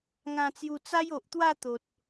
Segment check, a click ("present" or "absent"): absent